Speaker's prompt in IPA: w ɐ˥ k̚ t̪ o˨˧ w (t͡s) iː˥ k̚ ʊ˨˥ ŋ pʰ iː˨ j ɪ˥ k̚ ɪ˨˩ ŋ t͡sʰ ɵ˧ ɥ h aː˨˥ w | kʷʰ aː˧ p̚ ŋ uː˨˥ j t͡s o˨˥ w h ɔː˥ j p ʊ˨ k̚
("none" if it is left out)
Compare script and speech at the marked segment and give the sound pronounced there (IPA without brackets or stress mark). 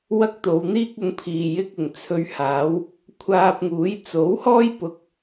n̪